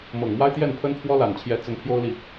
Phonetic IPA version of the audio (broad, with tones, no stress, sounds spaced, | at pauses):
m ɤ˨˩ ŋ m w a˥ ɪ̯ t̪ j ɛ˥˩ n pʰ ə˥ n pʰ w ɔ˥ l a˨˩ n t͡ɕʰ j ɛ˧˥ t͡s ə˧˥ n pʰ j o˥ ʊ̯ l i˨